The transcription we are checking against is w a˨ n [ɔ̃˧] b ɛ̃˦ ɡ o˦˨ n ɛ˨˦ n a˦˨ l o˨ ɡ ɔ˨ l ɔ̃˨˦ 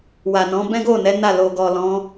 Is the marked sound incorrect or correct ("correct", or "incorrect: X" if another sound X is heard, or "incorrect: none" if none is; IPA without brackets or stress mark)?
incorrect: ɔ̃˨˦